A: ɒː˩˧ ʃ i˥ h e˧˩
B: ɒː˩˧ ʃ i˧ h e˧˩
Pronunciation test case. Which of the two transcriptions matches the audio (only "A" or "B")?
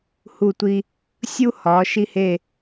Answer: B